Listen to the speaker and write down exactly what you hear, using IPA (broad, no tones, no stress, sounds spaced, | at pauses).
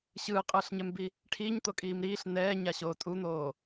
ɕ ɯː qʼ ɯː ɬ ɲ ɛ m b i | ʈʰ iː ɲ t̪ o kʼ iː m ɾ iː ɬ n ɛː ɲ a ɕ oː tʼ u n̪ oː